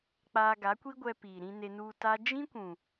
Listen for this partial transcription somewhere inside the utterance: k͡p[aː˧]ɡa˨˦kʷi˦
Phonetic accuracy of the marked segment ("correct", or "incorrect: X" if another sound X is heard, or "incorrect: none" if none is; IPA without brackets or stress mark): correct